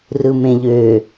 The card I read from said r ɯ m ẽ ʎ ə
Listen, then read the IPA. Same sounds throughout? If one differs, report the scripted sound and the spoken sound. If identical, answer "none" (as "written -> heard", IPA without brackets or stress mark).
ə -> ø